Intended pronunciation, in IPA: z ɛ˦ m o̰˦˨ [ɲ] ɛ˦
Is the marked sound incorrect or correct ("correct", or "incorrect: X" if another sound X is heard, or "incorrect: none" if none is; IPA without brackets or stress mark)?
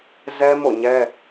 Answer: correct